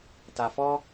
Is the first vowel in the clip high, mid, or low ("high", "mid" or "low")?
low